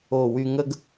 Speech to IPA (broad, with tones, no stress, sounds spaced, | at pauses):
o˧˩ w y˧ ŋ ə˥ ɡ